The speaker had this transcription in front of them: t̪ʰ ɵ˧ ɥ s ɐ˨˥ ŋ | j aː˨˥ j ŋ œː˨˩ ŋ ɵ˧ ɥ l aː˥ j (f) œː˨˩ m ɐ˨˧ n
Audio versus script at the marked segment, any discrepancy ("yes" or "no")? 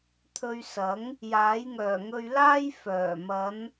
no